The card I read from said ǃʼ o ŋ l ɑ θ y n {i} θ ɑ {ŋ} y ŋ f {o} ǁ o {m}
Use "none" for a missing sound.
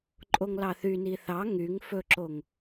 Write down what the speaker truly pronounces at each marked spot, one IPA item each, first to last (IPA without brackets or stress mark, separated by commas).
i, ŋ, ɵ, ŋ